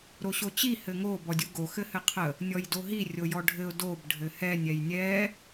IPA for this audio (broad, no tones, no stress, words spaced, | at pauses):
ɾoɕot͡ɕi hɘŋo bɔdʲuɡo xɘhɘqʰə | nʲɔjdoɦi rʲojɔɖʱɘʊ̯ dob ɖʱɘhɛnʲ ɛjnʲɛ